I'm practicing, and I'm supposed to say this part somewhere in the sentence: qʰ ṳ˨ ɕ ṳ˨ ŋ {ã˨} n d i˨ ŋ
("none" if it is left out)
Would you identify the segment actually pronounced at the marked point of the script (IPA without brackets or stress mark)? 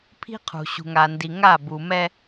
a˨